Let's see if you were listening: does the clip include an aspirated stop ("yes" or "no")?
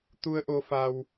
no